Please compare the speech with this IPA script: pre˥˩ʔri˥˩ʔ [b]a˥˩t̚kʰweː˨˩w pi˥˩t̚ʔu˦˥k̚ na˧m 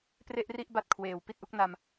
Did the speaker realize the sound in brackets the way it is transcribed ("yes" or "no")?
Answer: yes